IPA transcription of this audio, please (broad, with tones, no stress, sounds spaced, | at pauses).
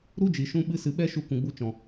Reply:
ɾ u˦ d͡ʒ i˨ ʃ ũ˧ ɓ ɨ˧ s ɨ˨ ɓ ɛ˦ ʃ u˧ k ũ˨ ɡ͡b u˧ t͡ʃ ɔ̃˨